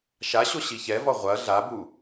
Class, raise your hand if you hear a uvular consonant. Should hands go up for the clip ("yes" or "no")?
yes